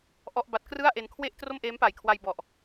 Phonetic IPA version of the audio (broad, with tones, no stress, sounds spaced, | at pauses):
ʔ ɔ˥˩ ʔ b a˦˥ t̚ k r ɯ˥˩ a̯ ʔ e˧ n kʰ w e˥˩ ʔ t r o˥˩ m ʔ eː˦˥ m p a˨˩ j kʰ w a˧ j b ɔ˨˩ ʔ